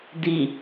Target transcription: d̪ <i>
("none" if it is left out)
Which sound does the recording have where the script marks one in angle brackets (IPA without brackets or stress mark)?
i